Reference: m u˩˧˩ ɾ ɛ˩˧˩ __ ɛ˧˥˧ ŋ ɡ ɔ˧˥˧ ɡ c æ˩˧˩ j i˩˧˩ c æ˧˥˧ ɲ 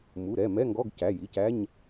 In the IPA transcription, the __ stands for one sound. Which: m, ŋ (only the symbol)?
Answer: m